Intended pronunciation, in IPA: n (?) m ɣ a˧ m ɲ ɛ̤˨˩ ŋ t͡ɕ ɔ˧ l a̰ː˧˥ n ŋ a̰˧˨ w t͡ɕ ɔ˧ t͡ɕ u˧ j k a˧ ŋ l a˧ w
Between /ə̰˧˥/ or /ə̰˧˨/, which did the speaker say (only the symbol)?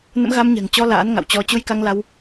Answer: ə̰˧˥